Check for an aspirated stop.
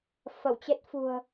absent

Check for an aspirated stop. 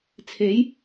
present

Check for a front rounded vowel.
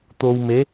absent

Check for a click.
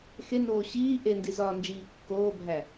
absent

